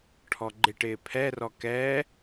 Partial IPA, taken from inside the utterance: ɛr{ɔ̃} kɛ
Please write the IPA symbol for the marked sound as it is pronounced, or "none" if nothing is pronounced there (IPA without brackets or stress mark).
ɔ